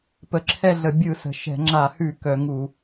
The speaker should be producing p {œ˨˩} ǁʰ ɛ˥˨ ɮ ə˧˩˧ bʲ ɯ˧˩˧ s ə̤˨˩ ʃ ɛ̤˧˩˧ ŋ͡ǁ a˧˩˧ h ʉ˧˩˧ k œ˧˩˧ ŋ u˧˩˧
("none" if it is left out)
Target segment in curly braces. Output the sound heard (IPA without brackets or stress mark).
ə˨˩